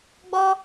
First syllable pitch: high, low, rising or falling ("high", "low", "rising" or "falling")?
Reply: high